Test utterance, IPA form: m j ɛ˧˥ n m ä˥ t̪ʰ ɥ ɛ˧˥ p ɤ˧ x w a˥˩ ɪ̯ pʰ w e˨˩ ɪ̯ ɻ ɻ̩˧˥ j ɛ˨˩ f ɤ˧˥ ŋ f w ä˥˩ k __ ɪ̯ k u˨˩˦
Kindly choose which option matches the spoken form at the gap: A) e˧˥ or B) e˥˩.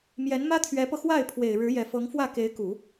A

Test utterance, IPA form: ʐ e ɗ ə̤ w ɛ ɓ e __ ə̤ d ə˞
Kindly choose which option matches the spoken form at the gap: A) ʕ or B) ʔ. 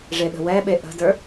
B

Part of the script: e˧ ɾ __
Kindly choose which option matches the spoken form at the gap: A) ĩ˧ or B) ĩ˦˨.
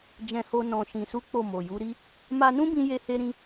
A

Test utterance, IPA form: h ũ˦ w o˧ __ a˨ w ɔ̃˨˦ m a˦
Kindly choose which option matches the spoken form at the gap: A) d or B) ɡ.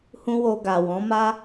B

